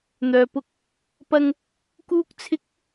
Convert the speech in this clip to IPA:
n̪ œː˨ p ʊ˧ k̚ | p ɐ˧ ŋ | k uː˥ k̚ t͡sʰ ɪ˥ k̚

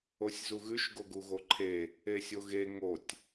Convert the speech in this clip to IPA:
o sʲ z u ɣ ʉ ʃ ɡ o ɡ u ɣ o ǃʰ e | e sʲ o ɣ e ŋ o tʲ

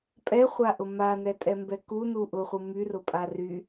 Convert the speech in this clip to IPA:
pʼ ɛ χʷ a ʔ ʊ m a n ɛ tʼ ɛ m b ɛ k u n u ʔ ʊ χʷ ɯ m y r ʊ pʼ a r y

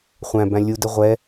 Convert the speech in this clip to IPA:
χʷ æ̃ b æ̃ lʲ u d ə ʁʷ ɛ

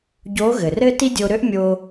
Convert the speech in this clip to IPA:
ɟ o˧˥ ɣ ɘ˩ r ɘ˥ t i˥ dʲ o˧ ɾ ø˥ ʔ mʲ o˧

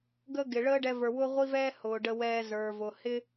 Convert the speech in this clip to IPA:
ɡ ə˦ ɡ ɪ˨ ɭ əː˦ ɖ ɛ˧ v ə˞˨ w ʊː˦ ʁʷ i˦ v ɛː˦ h ʊː˨ ɖ ə˧ w ɛː˧ z ə˞˨ v ʊ˨ h ɪ˦

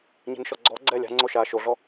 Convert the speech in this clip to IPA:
ɲ e̤ n ʃ ɔ ɡ͡ǀ ɔ ɡ͡ǀ ɛː lʲ a̤ ŋ͡ǀ o ʃ aː ʃ o ɮ ɔ

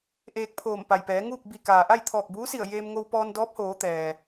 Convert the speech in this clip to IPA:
ʔ eː˧ k̚ pʰ oː˧˩ m p a˩ j p ɛː˩˧ ŋ uː˥˨ k̚ b i˧˩ k aː˩ ʔ a˥˨ j t̪ʰ ɔː˧˩ k̚ b uː˧˥ s i˧˩ ə̯ j eː˧ m ŋ o˧ w p ɔː˧ n d ɔː˧˥ p̚ h oː˩˧ t̪ ɛː˩

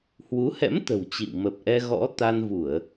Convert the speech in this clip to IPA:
h w u˨˦ h ɛ̰˧˥ m t̪ ə̤˨˩ w t͡ɕ ḭ˧˨ w m ə˨˩ p̚ ʔ ɛ˧ ɣ ɔ̰˧˥ t̪ a˧ n v u˧˩˨ ə̯

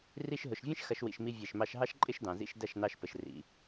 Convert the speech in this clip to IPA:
r i˧ ʃ ɦ ʊ˨ ʃ vʲ ɛ̃˦ ʃ x ɐ˦ ʃ w ḭ˧ ʃ m i˦ vʲ ɛ˦˨ ʃ m ɑ˦ ʃ ɦ ɑ˦ ʃ ǃʼ ɪ˦ ʃ d ɑ̃˨ z ḭ˧ ʃ d ɐ˦˨ ʃ n ɑ˧ ʃ p ə˨ ʃ r ḭ˨

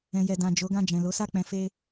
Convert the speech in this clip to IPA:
ɛ̃˨ j ɛ˨ d ã˨ d͡ʒ o˨˦ ɡ ã˦˨ d͡ʒ ɛ̃˨ l o˨˦ s a˦˨ k͡p ɛ̃˨˦ f e˦

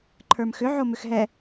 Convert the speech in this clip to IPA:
ǃʰ ə˞ m x ʏ ʕ o m ʏ x ɦ ɛ

